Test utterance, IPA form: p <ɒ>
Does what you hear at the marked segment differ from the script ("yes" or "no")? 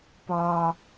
no